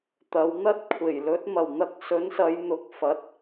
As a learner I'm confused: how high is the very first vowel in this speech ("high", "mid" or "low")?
low